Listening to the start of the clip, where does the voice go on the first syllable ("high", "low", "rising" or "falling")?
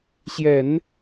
low